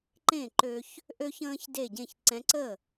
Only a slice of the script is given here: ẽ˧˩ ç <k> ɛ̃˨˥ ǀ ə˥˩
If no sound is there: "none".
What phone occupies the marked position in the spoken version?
ǀ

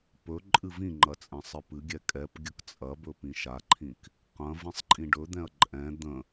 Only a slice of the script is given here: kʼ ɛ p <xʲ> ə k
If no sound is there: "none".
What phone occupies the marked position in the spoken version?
ɡʲ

